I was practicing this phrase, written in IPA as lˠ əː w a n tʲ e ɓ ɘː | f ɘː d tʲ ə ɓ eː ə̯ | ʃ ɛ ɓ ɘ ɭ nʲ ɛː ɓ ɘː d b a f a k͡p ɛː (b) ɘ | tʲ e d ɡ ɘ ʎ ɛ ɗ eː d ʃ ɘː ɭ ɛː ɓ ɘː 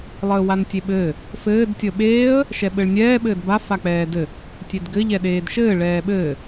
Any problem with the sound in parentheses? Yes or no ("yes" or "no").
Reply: yes